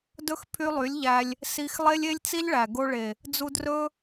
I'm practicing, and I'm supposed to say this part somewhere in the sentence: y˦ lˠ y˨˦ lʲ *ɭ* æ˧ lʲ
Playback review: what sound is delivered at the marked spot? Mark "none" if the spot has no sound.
ʎ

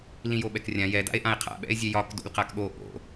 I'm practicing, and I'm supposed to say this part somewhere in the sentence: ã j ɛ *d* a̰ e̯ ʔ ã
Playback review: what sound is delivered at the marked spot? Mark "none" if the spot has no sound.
d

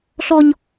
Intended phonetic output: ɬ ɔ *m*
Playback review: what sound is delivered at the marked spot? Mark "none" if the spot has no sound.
ɲ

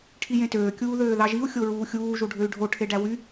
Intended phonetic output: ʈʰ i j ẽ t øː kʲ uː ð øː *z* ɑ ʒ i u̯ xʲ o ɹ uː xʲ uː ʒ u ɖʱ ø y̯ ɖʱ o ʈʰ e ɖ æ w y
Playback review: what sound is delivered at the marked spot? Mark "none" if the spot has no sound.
ð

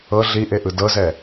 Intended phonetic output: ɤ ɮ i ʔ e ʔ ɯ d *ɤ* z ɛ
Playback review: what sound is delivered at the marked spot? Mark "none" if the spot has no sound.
ɤ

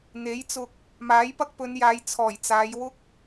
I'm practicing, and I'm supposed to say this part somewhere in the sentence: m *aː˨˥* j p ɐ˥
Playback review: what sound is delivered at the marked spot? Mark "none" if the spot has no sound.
aː˨˥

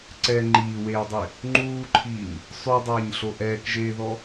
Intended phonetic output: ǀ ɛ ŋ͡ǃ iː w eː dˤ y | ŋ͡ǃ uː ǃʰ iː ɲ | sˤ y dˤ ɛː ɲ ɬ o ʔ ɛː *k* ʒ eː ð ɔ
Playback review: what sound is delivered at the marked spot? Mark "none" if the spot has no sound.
k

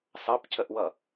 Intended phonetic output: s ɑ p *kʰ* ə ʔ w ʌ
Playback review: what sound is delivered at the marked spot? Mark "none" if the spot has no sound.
cʰ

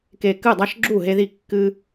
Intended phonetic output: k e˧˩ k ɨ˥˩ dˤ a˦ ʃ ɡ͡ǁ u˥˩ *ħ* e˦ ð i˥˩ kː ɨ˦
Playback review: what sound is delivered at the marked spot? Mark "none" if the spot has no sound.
ɦ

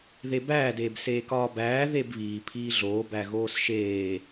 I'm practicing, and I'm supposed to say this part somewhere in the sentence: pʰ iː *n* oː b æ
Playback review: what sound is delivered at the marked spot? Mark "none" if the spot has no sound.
ɮ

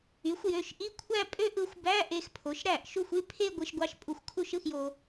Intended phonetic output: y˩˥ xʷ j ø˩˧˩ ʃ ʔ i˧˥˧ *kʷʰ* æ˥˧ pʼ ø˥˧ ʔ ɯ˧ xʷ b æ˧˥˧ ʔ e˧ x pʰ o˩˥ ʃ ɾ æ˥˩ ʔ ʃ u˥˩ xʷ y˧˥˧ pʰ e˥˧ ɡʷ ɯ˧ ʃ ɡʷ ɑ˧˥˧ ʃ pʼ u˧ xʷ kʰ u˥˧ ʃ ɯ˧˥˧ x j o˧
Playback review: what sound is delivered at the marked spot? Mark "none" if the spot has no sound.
kʷʰ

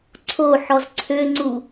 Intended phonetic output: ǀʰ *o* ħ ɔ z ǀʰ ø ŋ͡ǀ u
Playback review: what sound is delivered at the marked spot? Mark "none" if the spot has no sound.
o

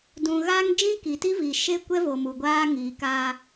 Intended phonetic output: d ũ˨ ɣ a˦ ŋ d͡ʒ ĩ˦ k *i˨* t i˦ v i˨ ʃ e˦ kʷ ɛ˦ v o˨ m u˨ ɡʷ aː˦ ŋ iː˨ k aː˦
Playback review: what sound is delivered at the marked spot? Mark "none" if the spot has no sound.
i˨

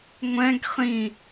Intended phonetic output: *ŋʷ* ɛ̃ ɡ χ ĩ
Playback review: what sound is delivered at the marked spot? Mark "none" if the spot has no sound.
ŋʷ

